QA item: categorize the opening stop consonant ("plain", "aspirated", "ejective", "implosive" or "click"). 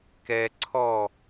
plain